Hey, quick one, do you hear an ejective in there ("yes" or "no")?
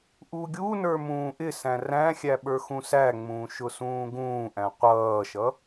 no